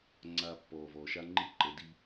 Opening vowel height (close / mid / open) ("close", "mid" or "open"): open